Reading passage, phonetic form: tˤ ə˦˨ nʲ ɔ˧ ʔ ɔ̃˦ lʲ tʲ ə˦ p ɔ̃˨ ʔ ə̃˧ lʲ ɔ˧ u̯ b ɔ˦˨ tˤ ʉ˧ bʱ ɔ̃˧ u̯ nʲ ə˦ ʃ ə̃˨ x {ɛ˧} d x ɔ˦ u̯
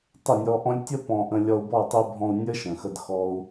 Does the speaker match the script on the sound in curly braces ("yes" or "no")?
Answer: no